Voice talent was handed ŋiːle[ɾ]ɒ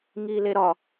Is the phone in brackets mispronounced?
no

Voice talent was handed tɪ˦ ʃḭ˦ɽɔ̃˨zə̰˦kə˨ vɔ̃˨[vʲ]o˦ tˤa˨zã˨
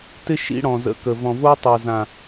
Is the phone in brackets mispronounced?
yes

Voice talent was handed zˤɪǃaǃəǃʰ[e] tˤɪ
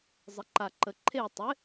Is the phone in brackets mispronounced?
no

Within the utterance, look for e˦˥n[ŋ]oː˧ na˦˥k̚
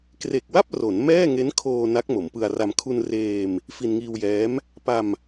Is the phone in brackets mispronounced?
yes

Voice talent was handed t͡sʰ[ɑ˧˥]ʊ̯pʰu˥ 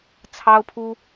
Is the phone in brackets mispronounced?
yes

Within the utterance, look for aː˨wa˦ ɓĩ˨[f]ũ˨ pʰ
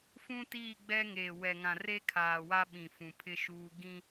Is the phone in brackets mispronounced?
no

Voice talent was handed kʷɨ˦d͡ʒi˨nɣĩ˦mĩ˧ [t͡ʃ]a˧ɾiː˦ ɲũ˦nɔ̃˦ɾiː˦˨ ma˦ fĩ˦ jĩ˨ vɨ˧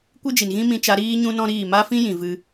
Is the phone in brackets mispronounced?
no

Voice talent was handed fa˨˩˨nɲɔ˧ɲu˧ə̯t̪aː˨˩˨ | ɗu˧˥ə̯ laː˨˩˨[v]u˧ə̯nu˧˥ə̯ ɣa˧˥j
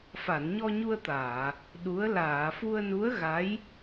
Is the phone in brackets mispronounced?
yes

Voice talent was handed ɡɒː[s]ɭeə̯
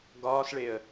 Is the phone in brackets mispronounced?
no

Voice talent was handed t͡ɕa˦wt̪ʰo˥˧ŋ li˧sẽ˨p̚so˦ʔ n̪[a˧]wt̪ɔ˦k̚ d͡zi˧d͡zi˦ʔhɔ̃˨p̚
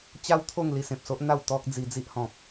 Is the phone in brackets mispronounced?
yes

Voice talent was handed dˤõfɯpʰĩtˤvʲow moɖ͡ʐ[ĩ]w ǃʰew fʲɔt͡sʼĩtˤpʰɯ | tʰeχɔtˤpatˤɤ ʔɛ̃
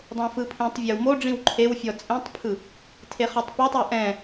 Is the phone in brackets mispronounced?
no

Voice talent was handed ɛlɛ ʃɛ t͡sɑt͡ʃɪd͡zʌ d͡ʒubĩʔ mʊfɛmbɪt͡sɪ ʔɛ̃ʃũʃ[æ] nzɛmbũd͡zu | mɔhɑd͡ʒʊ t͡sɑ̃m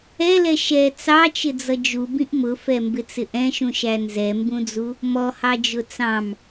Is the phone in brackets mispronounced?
no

